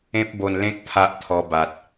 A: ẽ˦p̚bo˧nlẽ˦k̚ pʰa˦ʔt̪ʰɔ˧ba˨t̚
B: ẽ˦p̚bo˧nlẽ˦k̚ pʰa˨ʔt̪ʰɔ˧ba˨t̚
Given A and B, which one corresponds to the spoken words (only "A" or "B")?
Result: A